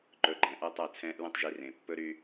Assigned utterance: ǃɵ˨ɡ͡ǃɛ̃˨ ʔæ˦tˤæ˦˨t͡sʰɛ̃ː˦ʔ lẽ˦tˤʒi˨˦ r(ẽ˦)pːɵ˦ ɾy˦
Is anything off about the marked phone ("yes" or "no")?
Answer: yes